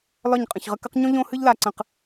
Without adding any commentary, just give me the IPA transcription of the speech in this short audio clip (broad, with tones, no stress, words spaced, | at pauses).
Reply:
lɒ˦˨ɲqʼə̃˨çʁə˦k ə˦qɲõ˦ ʎõ˦hɨ˦ʎla˨ǀə̃˨q